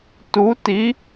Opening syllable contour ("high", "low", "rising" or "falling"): rising